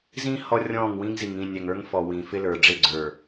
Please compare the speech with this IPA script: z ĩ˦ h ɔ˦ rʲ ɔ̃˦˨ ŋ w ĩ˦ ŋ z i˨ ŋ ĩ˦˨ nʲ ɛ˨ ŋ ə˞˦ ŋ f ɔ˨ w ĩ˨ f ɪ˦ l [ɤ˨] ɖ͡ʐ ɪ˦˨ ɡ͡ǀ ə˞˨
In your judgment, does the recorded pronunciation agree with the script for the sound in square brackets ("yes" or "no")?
no